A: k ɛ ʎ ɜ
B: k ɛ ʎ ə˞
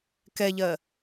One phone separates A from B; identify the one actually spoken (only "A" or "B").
A